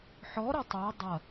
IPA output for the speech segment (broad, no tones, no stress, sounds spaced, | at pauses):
ħ ɔ ɾ ɐ tˤ a dˤ ɐ